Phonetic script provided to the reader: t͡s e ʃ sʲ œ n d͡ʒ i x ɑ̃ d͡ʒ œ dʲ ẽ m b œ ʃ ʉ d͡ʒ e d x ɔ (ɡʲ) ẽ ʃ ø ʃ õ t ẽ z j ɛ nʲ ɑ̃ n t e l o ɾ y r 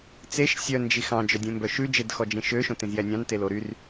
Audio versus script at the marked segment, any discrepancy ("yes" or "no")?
yes